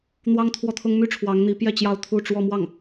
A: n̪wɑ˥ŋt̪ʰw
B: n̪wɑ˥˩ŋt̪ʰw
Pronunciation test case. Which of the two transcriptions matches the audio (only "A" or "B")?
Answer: A